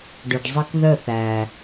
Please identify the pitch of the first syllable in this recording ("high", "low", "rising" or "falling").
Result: low